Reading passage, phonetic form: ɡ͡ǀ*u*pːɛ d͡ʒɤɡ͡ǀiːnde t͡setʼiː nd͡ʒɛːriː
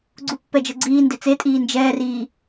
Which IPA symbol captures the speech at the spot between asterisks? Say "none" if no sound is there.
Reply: u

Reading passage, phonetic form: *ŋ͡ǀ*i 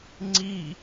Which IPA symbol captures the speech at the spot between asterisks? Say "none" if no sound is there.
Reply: ŋ͡ǀ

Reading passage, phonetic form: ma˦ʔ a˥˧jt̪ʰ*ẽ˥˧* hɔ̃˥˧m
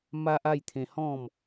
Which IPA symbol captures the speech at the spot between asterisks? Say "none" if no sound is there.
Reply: ẽ˧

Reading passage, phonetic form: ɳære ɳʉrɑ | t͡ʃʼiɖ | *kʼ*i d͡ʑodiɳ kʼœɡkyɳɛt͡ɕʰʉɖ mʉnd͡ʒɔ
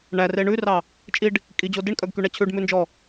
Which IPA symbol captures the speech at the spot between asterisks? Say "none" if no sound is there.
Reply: kʼ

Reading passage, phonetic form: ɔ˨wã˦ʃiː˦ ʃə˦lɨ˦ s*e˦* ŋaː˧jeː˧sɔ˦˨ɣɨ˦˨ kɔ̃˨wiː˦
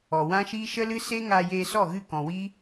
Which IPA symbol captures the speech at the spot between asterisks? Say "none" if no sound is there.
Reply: e˦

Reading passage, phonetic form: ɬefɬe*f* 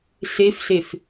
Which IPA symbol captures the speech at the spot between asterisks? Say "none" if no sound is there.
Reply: f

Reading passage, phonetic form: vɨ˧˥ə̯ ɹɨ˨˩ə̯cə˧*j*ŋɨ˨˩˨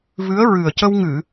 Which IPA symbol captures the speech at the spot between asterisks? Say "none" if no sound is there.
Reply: w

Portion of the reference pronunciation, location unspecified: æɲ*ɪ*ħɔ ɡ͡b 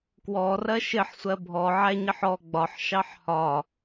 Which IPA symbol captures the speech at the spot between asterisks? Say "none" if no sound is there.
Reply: ɪ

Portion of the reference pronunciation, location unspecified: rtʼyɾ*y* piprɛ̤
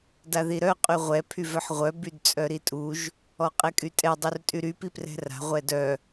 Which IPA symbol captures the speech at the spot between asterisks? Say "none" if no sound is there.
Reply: y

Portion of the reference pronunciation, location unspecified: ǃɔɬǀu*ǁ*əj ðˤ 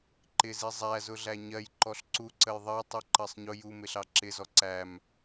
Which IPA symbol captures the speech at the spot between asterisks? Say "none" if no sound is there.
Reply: ǀ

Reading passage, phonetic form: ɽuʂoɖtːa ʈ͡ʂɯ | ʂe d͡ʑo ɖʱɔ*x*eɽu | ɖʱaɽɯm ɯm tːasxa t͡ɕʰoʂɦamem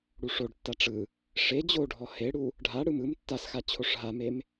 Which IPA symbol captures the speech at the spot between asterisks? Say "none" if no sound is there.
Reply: h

